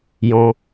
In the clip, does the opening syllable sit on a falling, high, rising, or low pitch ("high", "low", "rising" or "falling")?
low